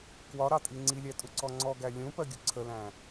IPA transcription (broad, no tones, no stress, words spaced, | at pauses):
kwɒɾɑtʼi ŋ͡ǀilʲætʼuǀɔ ŋ͡ǀɔɡæ lʲũpɜɡʲʊ ǀʰəlæ̃